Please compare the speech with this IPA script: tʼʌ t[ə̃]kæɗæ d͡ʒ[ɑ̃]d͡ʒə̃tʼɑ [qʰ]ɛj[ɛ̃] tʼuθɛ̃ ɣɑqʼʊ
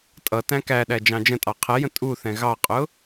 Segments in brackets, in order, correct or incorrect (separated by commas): incorrect, correct, correct, incorrect